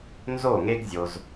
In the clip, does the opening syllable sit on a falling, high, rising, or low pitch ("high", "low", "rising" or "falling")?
falling